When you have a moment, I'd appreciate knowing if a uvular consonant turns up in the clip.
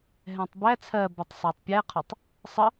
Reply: yes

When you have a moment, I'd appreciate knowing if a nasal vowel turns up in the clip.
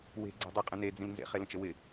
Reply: yes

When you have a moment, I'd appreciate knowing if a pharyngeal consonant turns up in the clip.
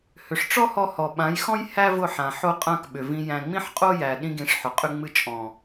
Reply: yes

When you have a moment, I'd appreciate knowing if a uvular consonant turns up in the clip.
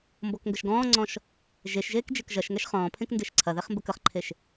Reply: yes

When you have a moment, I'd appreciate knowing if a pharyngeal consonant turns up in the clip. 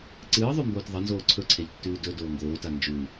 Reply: no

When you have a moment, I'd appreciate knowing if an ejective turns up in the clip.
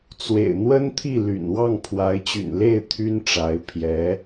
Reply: no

